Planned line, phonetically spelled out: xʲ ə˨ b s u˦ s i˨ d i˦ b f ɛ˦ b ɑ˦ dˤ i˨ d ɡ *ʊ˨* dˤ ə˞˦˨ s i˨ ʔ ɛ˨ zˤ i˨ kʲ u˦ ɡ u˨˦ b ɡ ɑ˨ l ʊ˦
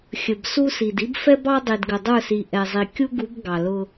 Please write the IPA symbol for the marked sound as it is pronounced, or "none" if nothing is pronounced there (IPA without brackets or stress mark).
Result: ə˨